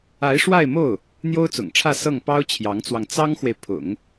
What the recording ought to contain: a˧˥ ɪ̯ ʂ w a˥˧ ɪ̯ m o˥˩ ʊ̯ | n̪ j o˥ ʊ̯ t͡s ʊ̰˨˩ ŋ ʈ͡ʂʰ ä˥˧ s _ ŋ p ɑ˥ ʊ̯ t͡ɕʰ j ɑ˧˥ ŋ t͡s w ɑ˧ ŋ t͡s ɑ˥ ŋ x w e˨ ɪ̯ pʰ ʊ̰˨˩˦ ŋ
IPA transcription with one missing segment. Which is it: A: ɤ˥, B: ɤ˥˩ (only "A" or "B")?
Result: B